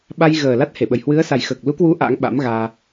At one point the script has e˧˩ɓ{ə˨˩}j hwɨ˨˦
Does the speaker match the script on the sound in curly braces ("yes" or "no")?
yes